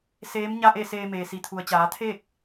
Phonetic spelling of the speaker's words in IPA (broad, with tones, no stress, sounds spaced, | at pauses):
s eː˧˥ m ɲ a˥˨ ʔ e˥˨ s eː˧ m eː˩ s i˩˧ t̪ʰ u˩ ə̯ t͡ɕ aː˩˧ t̪ʰ e˥˨ k̚